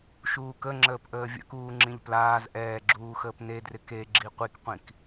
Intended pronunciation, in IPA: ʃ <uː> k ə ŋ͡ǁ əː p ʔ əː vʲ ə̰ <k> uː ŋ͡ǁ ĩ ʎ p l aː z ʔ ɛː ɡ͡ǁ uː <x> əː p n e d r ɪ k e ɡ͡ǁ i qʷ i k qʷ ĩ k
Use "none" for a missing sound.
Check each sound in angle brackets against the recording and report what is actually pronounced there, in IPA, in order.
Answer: uː, k, x

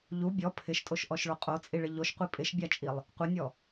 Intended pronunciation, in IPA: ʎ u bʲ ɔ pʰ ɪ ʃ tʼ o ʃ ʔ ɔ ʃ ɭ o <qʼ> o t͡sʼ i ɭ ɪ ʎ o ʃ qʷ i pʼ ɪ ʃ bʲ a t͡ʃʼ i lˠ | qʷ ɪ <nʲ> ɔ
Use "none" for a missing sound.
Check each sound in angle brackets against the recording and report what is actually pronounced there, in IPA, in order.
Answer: qʼ, nʲ

